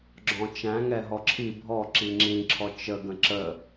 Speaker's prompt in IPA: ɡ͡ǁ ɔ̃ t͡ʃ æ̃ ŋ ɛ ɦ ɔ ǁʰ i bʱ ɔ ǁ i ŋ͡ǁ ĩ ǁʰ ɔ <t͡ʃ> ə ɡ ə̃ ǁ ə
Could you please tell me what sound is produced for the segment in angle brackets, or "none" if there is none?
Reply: t͡ʃ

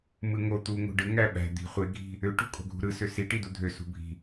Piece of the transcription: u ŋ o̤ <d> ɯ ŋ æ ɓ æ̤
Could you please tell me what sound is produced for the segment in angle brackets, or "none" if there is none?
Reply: ɖ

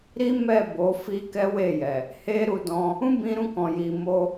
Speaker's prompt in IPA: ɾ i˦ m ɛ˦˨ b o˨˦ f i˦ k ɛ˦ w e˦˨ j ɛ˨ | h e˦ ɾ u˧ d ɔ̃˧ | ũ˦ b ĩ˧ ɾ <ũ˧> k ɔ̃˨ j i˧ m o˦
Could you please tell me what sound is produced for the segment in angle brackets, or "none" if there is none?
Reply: ũ˧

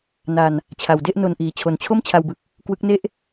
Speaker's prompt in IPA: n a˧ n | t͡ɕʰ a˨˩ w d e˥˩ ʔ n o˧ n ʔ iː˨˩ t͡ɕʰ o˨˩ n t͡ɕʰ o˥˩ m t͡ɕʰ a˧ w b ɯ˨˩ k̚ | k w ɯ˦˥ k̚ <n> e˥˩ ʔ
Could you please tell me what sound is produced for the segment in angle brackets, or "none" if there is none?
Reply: n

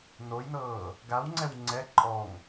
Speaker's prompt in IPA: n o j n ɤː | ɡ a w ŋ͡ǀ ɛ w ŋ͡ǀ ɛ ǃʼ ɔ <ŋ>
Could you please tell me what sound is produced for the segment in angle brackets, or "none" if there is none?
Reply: ŋ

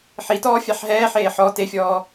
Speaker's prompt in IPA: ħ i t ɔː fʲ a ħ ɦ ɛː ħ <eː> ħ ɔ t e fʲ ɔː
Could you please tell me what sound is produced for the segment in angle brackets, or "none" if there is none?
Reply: eː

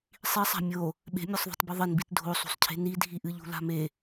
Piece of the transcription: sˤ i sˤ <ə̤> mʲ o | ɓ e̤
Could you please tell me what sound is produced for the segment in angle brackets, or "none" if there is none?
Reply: a̤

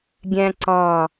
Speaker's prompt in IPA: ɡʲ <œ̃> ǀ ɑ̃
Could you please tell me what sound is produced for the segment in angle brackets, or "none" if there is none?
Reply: æ̃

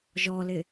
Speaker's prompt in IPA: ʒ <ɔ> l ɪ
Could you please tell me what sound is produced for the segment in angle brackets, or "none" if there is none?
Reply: ɔ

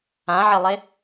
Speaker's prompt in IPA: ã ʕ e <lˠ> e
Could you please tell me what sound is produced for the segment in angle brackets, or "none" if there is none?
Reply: lˠ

